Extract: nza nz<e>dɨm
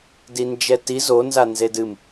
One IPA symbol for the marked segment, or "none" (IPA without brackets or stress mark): e